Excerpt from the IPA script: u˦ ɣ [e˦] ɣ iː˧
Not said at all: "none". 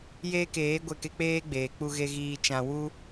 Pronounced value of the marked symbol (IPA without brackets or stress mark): e˦